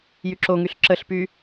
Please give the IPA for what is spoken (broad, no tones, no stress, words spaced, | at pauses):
jyǁoŋyɬ ǁəɬpy